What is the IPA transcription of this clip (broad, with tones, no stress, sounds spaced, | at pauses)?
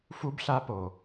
f u˦ b ɬ a˦ p o˨